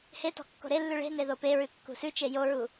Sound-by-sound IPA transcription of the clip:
h e t ɔ̤ kː o̤ ɾ e lː ʉ ɭ e̤ n e ð o p e ɹ ʉ kː ṳ s ʉ t͡ʃ e j o ɹ u

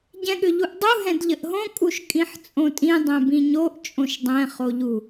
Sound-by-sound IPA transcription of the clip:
ɟ ɛ̃ ɠ ʏ ʎ u ʔ dˤ u ɦ ɛ̃ d ʎ ə ʔ ɦ õ kʼ u ʃ kʼ ĩ ħ t͡sʼ õ tʼ ĩ dˤ ɛ̃ b ĩ ɲ o ʔ t͡ʃʼ õ ʃ dˤ ɛ̃ χ o ʎ u

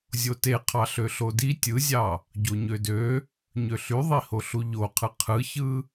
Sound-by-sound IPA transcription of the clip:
zʲ o t e qʰ ɑ ɬ ø ɬ o d i tʲ ɯ zʲ ɑ | ɟ o ɲ ø d ø | ɲ ø ɬ y ðˤ i h o ɬ u ʎ o qʰ ɯ qʰ ɯ ç ɯ

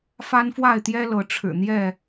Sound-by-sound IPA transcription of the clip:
f a˦ n f w a˥˨ ɪ̯ t̪ j ɛ˦ l ɤ˨˦ ʈ͡ʂʰ ɻ̩˨˩ n̪ j ɛ˥˨

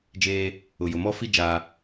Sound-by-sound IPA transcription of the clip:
d͡ʒ eː˦ | ʊ˨ j ʊ˨ m ɔ˦ f i˦ d͡ʒ aː˦

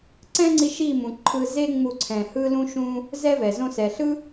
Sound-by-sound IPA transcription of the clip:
ǀ ɛ̃˦ ŋ͡ǀ i˧ ʃ i˦˨ m ũ˨ ǃʰ ɯ˧ z e˦ ŋ͡m u˦˨ ǀʰ ɛ̃˧ h ɯ˦ l ũ˦ ʃ ũ˦ | z ɛ˦ v ɛ˨ z õ˧ s ɛ˨ ɬ ɯ˦

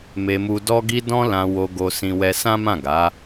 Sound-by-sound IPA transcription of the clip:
m e˧ m u˧ d ɔ˦ ɡ i˦ d ɔ̃˦ l ã˧ w o˧ ɡ o˧ s ĩ˧ w ɛ˧ s ã˦ m ã˦˨ ɡ a˨˦

